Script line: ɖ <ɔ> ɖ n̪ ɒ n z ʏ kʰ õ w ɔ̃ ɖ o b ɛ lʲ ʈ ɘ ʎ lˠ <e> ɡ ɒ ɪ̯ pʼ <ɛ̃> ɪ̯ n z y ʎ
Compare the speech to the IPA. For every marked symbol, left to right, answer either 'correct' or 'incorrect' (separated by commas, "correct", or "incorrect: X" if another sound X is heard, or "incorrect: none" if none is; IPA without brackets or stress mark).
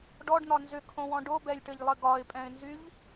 correct, incorrect: ɘ, correct